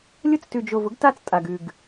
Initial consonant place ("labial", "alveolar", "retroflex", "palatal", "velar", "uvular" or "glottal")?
alveolar